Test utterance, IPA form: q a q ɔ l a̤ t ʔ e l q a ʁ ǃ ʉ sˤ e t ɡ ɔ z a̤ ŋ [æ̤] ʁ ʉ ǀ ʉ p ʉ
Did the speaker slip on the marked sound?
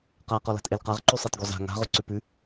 yes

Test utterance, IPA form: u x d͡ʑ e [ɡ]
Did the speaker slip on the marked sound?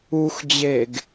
no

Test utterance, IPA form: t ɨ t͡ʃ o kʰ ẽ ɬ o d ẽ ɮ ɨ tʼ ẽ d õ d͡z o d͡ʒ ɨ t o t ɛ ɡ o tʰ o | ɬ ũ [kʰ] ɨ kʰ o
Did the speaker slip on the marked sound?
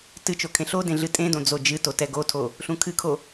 no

